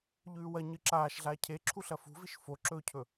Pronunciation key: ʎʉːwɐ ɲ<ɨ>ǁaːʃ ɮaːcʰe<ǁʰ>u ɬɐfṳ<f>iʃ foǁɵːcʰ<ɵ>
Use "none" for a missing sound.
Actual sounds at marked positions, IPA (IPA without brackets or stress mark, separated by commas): ɨ, ǁʰ, v, ɵ